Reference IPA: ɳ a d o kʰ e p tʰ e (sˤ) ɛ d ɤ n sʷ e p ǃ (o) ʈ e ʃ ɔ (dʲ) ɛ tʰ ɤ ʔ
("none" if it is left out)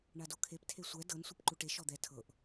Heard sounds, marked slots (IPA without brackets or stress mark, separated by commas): sʷ, u, d̪